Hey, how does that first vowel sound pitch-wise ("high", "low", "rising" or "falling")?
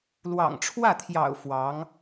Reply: low